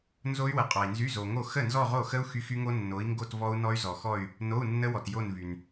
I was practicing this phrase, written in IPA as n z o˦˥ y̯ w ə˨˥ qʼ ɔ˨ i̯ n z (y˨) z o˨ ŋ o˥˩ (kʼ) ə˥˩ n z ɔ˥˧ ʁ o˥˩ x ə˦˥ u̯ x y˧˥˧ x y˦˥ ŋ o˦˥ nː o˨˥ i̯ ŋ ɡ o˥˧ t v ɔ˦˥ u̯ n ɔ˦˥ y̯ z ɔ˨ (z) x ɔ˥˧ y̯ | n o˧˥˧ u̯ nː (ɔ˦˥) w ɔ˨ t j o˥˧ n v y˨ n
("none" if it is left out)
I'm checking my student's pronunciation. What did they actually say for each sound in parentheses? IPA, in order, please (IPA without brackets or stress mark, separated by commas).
y˧˥˧, x, none, ə˦˥